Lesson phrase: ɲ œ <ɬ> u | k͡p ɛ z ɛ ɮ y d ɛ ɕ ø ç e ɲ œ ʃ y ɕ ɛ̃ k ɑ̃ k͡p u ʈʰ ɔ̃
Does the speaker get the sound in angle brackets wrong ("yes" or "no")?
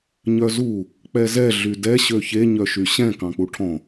yes